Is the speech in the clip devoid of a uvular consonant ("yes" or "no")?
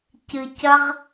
no